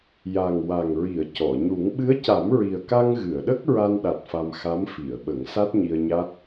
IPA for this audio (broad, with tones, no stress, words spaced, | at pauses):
ja˨˩ŋwa˨˩ŋɹi˨˩˨ə̯ cɔ˨˩˨ɲu˨˩˦ŋ ɓɨ˧˥ə̯ca˨˩˦mɹi˨˩ə̯ka˧ŋ ɣɨ˨˩˨ə̯ɗə˦˥k̚ ɹa˧nɗa˨˩t̚ fa˧mxa˧˥mfi˨˩˨ə̯ɓə˨˩˦ŋ sa˦˥t̚ɲi˧ə̯ɲa˦˥t̚